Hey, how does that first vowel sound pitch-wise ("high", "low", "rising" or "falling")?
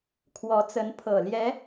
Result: rising